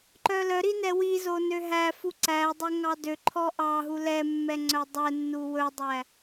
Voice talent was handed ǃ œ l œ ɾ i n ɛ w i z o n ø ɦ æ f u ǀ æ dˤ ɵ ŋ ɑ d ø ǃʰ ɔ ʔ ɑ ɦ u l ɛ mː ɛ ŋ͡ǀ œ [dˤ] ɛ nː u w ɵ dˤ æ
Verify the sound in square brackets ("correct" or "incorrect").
correct